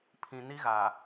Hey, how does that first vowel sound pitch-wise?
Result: low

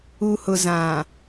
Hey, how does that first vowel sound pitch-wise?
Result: low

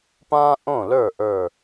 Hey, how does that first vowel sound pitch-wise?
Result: high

